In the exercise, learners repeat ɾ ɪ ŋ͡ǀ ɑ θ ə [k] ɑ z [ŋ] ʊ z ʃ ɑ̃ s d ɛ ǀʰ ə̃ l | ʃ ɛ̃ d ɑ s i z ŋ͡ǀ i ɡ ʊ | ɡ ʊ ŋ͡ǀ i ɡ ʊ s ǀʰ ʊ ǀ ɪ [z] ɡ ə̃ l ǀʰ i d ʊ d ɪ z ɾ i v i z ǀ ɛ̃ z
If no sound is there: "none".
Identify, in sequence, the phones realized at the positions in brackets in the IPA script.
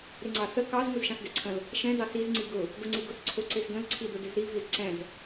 k, ŋ, z

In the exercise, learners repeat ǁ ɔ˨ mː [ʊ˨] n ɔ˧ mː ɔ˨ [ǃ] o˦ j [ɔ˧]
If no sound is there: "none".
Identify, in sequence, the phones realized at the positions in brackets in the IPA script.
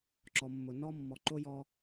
ʊ˨, ǃ, ɔ˧

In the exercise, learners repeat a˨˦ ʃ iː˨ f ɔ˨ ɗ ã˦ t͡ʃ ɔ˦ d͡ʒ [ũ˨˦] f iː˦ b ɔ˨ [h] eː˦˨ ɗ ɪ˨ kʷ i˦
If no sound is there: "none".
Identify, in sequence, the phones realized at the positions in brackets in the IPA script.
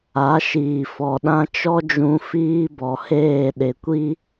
ũ˨˦, h

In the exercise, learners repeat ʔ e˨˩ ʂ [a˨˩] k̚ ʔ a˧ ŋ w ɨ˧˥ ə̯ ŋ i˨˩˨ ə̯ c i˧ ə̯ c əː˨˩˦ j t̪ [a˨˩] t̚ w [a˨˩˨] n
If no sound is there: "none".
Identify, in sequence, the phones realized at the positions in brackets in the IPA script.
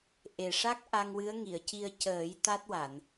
a˦˥, a˦˥, a˨˩˨

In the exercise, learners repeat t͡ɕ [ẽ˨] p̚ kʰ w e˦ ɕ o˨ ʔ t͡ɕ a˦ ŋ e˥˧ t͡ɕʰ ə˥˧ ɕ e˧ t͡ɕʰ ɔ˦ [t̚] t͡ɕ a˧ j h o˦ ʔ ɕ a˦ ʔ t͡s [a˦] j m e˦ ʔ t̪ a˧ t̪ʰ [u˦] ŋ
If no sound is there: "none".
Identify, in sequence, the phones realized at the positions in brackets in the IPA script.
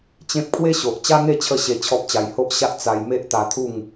ẽ˦, p̚, a˧, u˥˧

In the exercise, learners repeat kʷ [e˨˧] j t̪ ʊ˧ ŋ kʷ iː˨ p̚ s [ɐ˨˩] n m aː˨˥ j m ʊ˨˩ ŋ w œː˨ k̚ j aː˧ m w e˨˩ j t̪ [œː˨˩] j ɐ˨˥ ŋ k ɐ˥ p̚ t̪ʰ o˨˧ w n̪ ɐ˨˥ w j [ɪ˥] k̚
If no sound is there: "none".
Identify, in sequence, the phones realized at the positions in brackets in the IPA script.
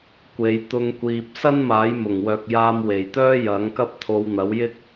e˨˧, ɐ˥, œː˥, ɪ˥

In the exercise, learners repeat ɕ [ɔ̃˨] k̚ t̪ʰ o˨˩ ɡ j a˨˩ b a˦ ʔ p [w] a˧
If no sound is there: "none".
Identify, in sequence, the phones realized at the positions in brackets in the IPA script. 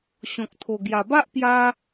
ɔ̃˨, j

